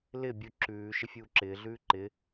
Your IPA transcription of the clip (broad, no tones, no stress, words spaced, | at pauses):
lɪ bʲuǁʉː ʃɪfʲuːǁɪː ɮʉːǃɪ